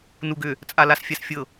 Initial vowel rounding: rounded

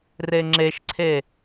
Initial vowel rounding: unrounded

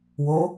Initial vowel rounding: rounded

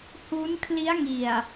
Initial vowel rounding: rounded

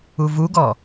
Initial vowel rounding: rounded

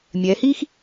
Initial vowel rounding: unrounded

